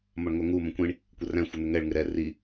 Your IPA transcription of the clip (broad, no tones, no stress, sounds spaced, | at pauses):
m ɒ ɳ ŋʷ ɛ ŋ u m ə̃ kʷ ĩ ɳ | kʷ ə r æ̃ xʷ ɪ n̪ ɪ ŋ ɛ ɭ ŋ ɪ ɾ ɛ r i